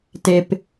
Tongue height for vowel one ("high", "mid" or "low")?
mid